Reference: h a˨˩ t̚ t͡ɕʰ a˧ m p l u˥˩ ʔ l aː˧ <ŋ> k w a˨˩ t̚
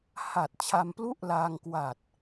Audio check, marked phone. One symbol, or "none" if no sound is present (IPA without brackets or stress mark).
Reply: ŋ